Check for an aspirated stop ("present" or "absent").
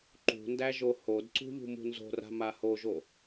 absent